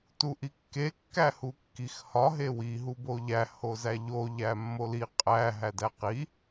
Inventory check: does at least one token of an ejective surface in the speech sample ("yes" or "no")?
yes